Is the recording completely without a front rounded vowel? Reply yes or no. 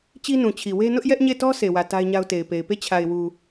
yes